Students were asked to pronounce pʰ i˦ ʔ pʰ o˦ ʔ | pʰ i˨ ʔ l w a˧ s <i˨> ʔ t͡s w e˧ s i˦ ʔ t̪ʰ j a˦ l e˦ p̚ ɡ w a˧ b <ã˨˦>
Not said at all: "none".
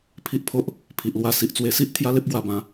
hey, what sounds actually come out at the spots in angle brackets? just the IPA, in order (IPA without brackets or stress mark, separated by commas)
i˨, ã˨˦